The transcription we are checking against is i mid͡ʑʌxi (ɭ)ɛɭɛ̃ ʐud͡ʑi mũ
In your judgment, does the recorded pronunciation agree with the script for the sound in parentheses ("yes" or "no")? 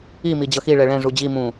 yes